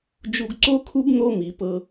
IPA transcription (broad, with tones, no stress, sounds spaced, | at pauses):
d͡ʒ u˧ ɡ ǀ o˥ kʰ u˥ b n̪ o˥ m i˩˧ p ɤ˧